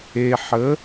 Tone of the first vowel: low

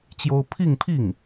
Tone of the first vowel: high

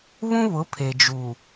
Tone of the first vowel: high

